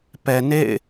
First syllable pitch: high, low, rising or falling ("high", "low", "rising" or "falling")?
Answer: low